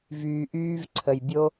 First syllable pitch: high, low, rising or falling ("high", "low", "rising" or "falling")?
low